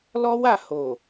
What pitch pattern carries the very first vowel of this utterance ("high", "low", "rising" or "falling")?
high